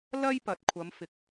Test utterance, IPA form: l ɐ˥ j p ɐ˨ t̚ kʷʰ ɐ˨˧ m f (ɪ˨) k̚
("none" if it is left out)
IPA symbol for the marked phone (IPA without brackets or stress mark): ɪ˨